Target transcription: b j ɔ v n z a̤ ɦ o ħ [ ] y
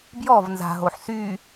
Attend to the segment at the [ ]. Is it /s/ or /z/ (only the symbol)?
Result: s